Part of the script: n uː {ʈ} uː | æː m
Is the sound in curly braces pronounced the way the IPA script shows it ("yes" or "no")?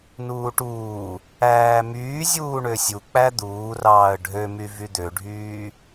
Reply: yes